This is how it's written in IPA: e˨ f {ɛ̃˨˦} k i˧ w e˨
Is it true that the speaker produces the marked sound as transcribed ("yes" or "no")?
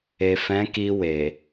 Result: yes